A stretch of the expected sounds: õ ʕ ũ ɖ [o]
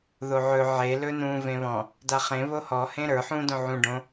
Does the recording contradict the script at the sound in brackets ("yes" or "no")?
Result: yes